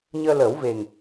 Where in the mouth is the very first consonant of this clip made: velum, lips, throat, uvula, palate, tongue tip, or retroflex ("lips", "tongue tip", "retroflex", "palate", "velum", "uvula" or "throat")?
palate